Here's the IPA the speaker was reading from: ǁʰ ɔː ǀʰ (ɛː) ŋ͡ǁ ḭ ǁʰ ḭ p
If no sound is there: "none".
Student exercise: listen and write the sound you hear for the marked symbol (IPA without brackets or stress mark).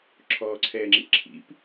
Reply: ɛː